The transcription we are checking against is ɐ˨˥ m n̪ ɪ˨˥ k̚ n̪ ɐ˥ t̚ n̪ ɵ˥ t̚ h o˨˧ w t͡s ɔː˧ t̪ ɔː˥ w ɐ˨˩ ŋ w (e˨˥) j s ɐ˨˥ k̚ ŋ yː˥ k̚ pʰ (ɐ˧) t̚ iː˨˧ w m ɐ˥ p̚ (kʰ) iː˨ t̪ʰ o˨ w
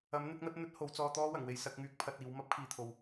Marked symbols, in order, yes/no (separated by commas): no, yes, yes